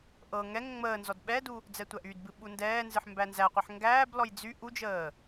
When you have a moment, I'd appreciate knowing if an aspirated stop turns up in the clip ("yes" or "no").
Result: no